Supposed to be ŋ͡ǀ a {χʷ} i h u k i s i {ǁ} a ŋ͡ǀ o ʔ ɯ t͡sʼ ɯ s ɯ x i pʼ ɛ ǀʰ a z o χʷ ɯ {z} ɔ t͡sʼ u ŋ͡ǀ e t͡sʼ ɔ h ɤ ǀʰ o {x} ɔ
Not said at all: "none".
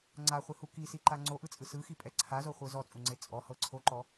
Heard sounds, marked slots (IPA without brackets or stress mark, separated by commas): χʷ, ǃ, z, ǃ